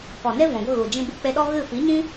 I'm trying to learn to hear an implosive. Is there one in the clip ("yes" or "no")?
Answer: yes